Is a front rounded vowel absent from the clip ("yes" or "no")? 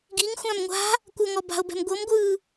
yes